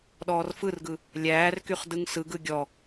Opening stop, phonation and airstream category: implosive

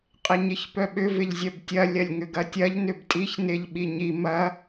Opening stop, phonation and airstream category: ejective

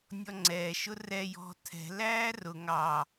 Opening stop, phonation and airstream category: click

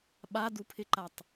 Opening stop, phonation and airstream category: implosive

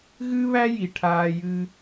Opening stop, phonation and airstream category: aspirated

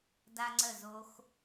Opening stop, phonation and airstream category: plain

